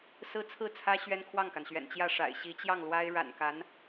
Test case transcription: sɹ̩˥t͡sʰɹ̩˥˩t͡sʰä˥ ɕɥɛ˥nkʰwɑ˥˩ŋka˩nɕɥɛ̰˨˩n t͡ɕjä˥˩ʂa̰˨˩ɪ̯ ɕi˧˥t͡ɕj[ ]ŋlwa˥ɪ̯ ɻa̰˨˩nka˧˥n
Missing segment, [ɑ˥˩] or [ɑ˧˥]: ɑ˥˩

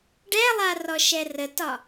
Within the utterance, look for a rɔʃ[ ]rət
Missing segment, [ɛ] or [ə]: ɛ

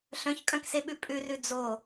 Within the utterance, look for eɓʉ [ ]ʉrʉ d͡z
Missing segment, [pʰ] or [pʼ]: pʼ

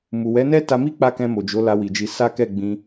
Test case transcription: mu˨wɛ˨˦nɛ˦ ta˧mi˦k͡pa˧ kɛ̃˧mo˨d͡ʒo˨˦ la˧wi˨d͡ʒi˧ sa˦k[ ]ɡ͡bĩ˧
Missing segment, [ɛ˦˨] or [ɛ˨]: ɛ˦˨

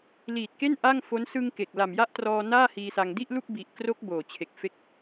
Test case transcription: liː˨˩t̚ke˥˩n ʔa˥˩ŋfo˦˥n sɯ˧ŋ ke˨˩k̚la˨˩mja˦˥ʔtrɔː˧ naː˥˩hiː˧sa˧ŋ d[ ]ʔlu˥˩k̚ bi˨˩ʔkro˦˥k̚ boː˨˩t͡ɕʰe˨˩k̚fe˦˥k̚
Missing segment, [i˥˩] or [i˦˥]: i˥˩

